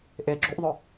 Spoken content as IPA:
ʔ ɪː ɡ͡ǁ u ʔ ðˤ ʊ

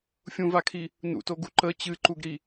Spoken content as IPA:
fʲ ũ v a kʰ i | n ṵ t o ɡ u ǃ ə t͡ɕ ɨ ǃ u ɡ ɾ i

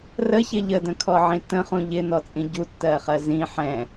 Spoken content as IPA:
r ə ç ɪ ʎ ə d ə̃ kʰ ɔ ʕ ĩ t ə̃ χ ũ ʎ ɪ n ɔ t͡sʼ ĩ ɟ u tː ɜ χ ɜ z ĩ ħ ɛ̃

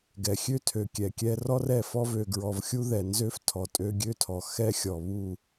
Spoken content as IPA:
ɡ ɛ˨ xʲ ø˦ tʰ ø˨ kʲ ɛ˨ kʲ ɛ˦ r ɔ˦ r ɛ˦˨ f ɔ˦ v ø˨ ɡ ɹ ɔ˨ v xʲ u˦ ð ɛ˨ n z ø˦ f tʰ ɔ˨ tʼ ø˦ ɡʲ ø˦ tʰ ɔ˨ x ɛ˦ xʲ ɔ˨ β u˦˨

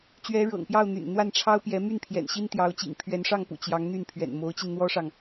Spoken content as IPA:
t͡ɕ ɥ ɛ˧˥ ɻ ɤ̰˨˩ ŋ p j ɑ˥˩ ʊ̯ n̪ y̰˨˩ n n̪ w a˥˩ n ʈ͡ʂʰ ɑ˥ ʊ̯ p j ɛ˧˥ m y˥˩ n pʰ j ɛ̰˨˩ n ɕ i˥ n t̪ j ɑ˧˥ ʊ̯ t͡ɕ ḭ˨˩ ŋ pʰ ɥ ɛ˧˥ n ʂ ɑ˥˩ ŋ p ṵ˨˩ t͡ɕ j ɑ˧˥ ŋ n̪ y˥˩ n pʰ ɥ ɛ̰˨˩ n m o˧˥ ʊ̯ t͡ɕ i˧ n n̪ w ɔ˥ ʂ ɑ˨ ŋ

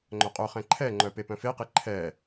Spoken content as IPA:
ŋ͡ǃ œ qʼ œ χ ɛ̃ ǃʰ ɛ ŋ͡ǃ œ p e p œ̃ f e q e ǃʰ ɛ

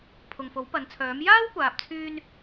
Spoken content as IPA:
pʰ ʊ˨ ŋ f o˨˥ w p ɐ˨˥ n t͡sʰ œː˨˥ m j aː˥ w kʷ aː˨ p̚ t͡sʰ yː˧ n

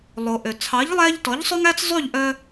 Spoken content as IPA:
lˠ o˩ ʔ ø˩ t͡sʰ ɑ˩˥ ʎ lˠ æ˧ ʎ t ɔ˩˥ ʎ sˤ ø˥ ŋ æ˥ t͡s zˤ y˥˩ ʎ ʔ œ˧

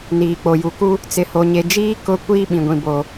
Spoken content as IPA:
n iː˨ k͡p o˨ j u˨ k u˦ | t͡s ɪ˨ h o˨ ɲ e˨ d͡ʒ iː˦ k ʊ˦ kʷ iː˦ ɓ ĩ˨ ɡʷ ĩ˨ b o˨

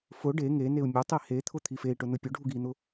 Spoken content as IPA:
f ʊ ɖ e ŋ e n e u̯ mʲ ʊ tˤ i h e t̪ʰ ʊ t̪ʰ i f e i̯ ʈ ʊ n ʊ pʲ ʊ ɖʱ u ɡ i n̪ ʊ

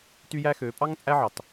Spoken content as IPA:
t y˦ j æ˦ x ø˨˦ pʼ ɑ˦ ŋ t͡sʼ æ˦ ʕ ɑ˨ t

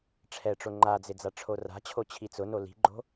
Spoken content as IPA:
ʈ͡ʂʰ ɛ ʈ͡ʂ o ŋ͡ǃ a d͡z ɪ d͡z a ʈ͡ʂʰ o r a̤ t͡ɕʰ o t͡ɕʰ i t͡s ʊ n o l i̤ ɡ͡ǃ o̤

